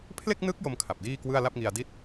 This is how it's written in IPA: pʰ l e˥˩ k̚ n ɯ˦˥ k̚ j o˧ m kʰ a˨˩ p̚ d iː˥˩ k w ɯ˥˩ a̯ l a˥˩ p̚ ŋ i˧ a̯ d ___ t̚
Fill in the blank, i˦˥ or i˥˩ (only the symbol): i˥˩